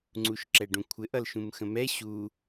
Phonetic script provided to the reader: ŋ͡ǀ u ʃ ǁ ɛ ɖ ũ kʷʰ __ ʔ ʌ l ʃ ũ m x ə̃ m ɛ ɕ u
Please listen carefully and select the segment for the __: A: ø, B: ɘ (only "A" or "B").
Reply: B